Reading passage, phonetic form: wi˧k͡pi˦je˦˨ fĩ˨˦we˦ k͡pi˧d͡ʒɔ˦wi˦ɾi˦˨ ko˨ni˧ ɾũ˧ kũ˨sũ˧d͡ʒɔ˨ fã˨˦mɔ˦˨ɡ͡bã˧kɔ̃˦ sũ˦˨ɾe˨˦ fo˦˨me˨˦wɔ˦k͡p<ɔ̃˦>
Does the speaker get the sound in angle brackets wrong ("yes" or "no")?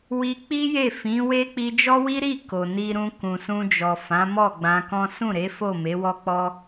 yes